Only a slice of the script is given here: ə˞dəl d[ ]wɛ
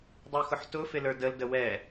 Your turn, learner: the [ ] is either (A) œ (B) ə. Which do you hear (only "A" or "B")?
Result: B